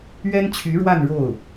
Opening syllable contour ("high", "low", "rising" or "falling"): high